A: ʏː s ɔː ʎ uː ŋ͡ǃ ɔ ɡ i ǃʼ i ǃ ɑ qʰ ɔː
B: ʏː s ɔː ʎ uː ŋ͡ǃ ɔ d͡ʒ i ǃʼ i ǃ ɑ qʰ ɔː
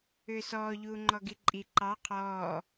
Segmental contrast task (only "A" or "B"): A